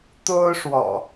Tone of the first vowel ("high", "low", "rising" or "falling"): high